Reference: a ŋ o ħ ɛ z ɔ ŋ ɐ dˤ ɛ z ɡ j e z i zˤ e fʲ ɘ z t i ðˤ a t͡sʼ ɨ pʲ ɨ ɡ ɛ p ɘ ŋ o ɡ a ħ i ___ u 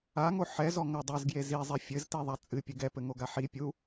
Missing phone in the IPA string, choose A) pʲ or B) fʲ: A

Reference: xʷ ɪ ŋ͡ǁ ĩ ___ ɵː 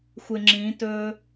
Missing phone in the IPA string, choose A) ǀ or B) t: B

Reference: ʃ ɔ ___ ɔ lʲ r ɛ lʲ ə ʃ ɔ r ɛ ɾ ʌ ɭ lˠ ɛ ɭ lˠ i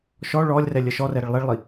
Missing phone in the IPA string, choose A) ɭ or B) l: A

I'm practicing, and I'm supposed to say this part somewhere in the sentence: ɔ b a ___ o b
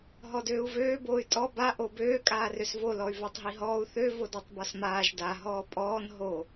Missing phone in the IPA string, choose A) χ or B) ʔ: B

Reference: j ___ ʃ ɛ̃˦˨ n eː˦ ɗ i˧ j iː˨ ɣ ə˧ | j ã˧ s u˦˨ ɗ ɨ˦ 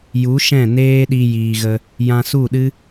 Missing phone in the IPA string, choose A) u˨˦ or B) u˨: A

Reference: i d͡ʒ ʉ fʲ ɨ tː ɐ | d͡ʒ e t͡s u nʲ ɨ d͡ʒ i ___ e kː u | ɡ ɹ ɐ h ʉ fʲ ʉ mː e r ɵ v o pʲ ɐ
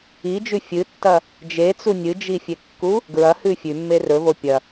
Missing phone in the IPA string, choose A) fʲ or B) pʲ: A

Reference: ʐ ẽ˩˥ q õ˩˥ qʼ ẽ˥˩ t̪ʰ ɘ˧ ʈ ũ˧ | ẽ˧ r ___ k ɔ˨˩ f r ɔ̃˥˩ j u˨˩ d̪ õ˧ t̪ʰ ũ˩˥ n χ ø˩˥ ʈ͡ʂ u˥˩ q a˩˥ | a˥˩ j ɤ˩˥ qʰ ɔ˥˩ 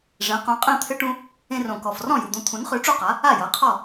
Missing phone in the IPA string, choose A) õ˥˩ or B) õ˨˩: B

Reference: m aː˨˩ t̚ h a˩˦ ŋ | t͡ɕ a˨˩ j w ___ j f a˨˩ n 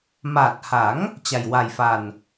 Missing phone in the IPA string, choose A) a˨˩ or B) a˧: A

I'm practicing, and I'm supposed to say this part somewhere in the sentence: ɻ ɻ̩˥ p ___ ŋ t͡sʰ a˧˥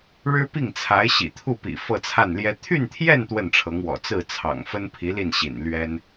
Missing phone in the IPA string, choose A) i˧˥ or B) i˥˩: B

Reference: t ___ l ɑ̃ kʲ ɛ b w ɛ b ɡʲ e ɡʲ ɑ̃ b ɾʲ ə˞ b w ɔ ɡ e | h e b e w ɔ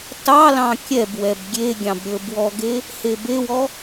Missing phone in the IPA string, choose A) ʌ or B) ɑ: B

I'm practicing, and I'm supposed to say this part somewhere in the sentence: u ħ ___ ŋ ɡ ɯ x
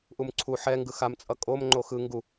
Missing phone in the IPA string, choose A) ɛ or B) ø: A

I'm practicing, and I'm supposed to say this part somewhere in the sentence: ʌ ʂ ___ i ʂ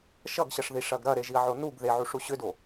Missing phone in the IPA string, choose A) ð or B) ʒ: A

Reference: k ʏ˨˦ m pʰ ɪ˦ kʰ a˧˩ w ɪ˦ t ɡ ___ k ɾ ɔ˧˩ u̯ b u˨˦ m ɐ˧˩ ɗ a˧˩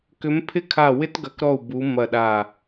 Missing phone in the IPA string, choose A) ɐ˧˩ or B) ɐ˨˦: B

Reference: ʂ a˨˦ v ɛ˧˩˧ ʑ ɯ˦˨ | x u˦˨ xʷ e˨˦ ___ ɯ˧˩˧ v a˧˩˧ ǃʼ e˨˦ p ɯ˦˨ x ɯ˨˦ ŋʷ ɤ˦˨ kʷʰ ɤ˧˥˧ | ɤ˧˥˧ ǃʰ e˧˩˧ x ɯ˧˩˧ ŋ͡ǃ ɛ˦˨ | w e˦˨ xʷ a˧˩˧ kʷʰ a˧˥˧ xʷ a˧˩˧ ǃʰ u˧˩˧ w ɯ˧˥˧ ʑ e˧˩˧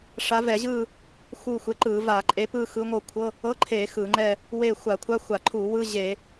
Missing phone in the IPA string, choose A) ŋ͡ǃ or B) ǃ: B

